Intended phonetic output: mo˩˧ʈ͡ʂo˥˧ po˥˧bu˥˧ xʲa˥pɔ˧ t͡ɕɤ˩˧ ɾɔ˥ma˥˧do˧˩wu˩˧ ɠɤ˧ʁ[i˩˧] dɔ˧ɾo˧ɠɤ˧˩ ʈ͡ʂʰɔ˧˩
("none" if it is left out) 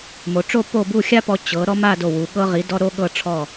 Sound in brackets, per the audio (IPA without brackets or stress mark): i˩˧